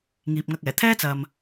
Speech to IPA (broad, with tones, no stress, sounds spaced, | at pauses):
ŋ iː˨ p̚ ŋ ɐ˧ k̚ ɛː˨˩ t̪ʰ ɛː˥ t͡s ɐ˨ m